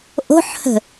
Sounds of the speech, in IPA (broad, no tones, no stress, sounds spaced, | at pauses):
ʔ o̤ ħ h ə̤